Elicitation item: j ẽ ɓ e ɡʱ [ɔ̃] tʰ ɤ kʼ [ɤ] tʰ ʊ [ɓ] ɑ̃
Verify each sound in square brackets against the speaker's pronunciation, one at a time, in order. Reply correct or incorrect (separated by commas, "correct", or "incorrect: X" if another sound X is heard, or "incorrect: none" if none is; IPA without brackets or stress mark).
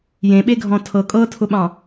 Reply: correct, correct, correct